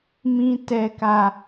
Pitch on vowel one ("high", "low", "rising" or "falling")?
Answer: low